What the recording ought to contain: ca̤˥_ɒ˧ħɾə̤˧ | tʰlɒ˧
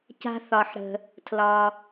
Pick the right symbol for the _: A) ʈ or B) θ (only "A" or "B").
B